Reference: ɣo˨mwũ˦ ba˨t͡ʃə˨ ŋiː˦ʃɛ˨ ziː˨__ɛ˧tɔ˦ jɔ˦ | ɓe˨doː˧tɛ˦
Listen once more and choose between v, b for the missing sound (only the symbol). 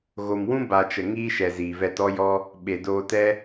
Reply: v